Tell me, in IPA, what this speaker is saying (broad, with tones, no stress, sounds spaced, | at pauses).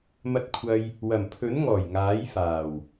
m ɐ˧ t̚ kʷʰ ɐ˧ j | w ɐ˨˩ m pʰ ɵ˨˥ n ŋ ɔː˨˩ j ŋ aː˨˥ j f aː˨˩ w